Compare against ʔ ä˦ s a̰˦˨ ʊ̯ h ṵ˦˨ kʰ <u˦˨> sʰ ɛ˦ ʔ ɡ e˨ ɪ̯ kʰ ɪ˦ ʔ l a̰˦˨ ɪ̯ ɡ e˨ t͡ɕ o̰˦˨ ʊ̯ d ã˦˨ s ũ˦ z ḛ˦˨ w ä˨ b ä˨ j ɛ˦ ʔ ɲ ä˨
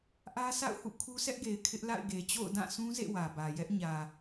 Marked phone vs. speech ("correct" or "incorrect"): incorrect